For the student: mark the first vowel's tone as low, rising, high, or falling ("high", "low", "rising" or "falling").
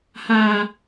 high